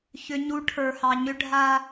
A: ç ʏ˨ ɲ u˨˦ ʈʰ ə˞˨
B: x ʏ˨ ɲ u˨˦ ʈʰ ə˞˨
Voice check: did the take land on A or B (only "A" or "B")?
A